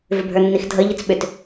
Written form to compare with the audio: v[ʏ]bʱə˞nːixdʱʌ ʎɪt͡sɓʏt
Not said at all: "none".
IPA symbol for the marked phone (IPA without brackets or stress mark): ʏ